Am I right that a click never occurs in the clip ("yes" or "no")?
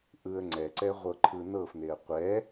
no